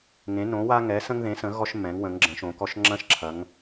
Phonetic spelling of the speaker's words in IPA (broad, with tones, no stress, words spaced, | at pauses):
ŋẽ˨˦ nõ˨˦wa˦ŋɛ˨˦ sə̃˦ŋðẽ˨˦sə̃˨˦ ɣɔ˦ʃmːɛ̃˨˦ŋ wə̃˨˦ŋɡ͡ǁə̃˨˦ʃõ˨˦kɔ˦ʃ ŋ͡ǁɐ̃˦ʃ ǁʰɐ˨˦ŋ